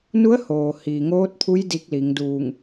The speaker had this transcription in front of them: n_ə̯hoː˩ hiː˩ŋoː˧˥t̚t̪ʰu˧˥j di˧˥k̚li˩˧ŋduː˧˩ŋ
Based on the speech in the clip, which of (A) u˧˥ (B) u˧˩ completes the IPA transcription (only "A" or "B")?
A